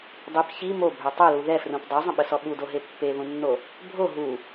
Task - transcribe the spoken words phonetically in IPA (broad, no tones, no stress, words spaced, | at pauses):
dˤip çi mobʱø tˤœlu ðɛfrũp dˤøzˤə̃ɓəsɔ ɓudoɦe pːeðũnːo | bʱo ɦu